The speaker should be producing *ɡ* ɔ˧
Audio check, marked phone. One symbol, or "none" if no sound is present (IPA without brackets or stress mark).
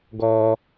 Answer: ɡ